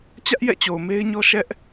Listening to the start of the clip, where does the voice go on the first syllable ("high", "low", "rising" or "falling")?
high